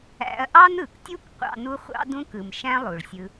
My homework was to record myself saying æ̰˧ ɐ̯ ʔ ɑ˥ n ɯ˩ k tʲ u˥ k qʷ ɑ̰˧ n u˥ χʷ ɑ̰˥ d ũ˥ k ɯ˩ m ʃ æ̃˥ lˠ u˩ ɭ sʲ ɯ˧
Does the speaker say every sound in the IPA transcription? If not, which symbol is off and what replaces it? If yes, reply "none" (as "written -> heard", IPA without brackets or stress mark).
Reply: none